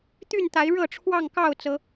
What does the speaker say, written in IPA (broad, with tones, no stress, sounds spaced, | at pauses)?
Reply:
t̪ y˥˨ n t̪ a˨˦ ɪ̯ ɻ ɤ˥˨ ʈ͡ʂʰ w ɑ˥˨ ŋ k ɑ˥˨ ʊ̯ t͡s ɤ˨˦